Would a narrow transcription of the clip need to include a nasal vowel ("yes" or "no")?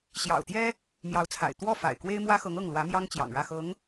no